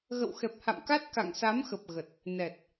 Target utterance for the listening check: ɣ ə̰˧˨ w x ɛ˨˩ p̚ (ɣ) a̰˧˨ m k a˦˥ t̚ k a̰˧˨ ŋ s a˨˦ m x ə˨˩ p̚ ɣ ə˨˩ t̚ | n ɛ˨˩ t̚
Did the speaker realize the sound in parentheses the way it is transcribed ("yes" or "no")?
no